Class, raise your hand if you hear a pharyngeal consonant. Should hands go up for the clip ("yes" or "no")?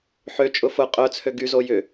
yes